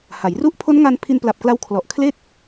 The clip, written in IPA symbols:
h a˩˦ j r u˥˩ ʔ pʰ o˦˥ n ŋ a˧ n pʰ i˧ n p l a˨˩ p̚ k l a˧ w kʰ l ɔ˨˩ ʔ kʰ l e˥˩ k̚

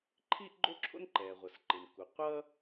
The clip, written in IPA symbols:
ǃʰ iː˥ ʔ ɡ͡ǃ o˥ ǁʰ o̰˥ n ǃ ɛː˩ ʁʷ ʌ˩ s ǃ ɯ˩ n k u˩ qʷ ʌː˥

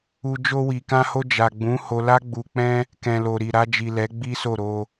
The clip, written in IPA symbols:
u˧ d͡ʒ o˧ w i˨ k ã˧ h o˧ d͡ʒ a˨ ɡ͡b ũ˨˦ h o˧ l a˦ ɡ͡b u˧ k͡p ɛ̃˦ | k ɛ̃˨ l o˨ ɾ i˨ ɾ a˧ d͡ʒ i˨ l ɛ˨˦ ɡ͡b i˦ s o˦˨ ɾ o˧

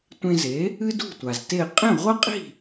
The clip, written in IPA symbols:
tʷ ẽ˧ z e˩˥ | ɨ˥ d ṳ˥˩ tʷ a˩ z t e˥˩ qʼ ẽ˥˩ ʁʷ ɐ˥ qʼ i̤˥˩

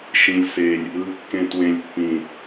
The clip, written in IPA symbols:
ʃ ĩ˨ lʲ s e˨ lʲ | ɯ˨ kː ẽ˨ t w ẽ˨ lʲ pː ĩ˨

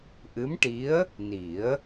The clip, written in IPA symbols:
ʔ ɨ˧˥ m ʈ i˧˥ ə̯ | n i˨˩˦ ə̯

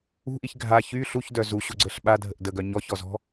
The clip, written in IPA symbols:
ṳ ʔ i ç ɡʱ a ç y ɬ u ç d œ z u ɕ u ɡ͡ǀ ə ɬ ɓ a dʱ ə ʔ d ə ɡ œ ɲ ɔ ç ɔ z ɔ̤

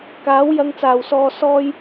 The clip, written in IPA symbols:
k aː˨˥ w j ɐ˧ ŋ t͡s aː˨ w s ɔː˧ s ɔː˥ j

